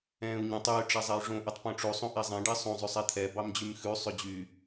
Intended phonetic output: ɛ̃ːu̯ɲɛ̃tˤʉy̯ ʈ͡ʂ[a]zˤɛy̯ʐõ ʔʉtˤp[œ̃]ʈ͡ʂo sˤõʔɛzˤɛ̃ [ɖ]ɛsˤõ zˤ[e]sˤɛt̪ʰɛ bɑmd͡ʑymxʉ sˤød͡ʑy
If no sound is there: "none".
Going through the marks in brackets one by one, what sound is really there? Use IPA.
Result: æ, œ̃, ɖ, ø

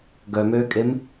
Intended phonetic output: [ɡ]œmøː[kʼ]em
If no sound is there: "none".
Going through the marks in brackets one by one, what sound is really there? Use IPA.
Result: ɡ, kʼ

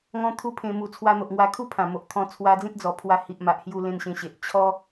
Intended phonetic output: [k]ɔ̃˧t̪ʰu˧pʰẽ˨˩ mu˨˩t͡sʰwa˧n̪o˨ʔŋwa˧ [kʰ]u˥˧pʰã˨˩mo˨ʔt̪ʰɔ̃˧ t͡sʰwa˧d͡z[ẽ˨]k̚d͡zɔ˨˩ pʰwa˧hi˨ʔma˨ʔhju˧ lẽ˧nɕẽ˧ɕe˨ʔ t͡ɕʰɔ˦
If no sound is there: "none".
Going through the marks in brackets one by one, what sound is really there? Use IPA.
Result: ŋ, kʰ, ẽ˦

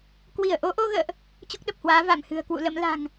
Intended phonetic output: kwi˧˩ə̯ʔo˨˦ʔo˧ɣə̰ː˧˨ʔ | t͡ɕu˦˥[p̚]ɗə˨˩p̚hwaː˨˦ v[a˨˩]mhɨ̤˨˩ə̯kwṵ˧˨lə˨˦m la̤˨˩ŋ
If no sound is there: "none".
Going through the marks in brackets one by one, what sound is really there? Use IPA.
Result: k̚, a˧˩

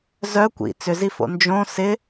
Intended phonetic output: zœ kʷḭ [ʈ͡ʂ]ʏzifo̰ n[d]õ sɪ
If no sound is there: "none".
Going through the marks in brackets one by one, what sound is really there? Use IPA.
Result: t͡s, d͡ʒ

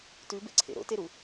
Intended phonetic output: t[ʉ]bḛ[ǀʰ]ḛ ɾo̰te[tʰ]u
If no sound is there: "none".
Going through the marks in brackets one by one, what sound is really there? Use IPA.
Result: ʉ, ǀʰ, ɾ

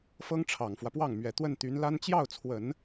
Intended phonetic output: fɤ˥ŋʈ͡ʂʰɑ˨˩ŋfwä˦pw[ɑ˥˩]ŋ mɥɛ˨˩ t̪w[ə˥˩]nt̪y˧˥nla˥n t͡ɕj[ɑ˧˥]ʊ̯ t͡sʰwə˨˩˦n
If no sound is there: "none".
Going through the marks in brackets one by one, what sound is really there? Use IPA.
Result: ɑ˥˩, ə˥˩, ɑ˥˩

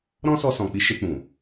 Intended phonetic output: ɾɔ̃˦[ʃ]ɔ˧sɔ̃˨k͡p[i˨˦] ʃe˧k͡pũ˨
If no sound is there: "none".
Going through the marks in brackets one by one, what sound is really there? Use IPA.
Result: s, i˨˦

